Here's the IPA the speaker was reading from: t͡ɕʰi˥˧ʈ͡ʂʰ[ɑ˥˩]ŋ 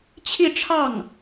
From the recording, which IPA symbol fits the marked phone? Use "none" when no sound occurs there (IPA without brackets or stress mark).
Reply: ɑ˥˩